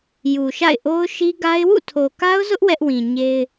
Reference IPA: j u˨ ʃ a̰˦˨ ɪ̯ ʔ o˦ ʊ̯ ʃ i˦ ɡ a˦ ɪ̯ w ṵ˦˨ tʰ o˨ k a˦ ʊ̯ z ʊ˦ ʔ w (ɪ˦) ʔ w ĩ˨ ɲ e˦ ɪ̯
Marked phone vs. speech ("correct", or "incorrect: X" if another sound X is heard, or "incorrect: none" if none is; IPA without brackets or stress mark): incorrect: ɛ˦